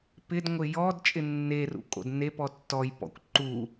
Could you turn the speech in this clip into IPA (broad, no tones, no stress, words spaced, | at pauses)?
pɪdŋʷɪ jɔd t͡ʃʼɪnːerṵkʼo̰d ne pɔtːɔj pɔ̰kʷǃu